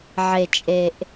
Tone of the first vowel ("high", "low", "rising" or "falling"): low